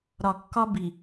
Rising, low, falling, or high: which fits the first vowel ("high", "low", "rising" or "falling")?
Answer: low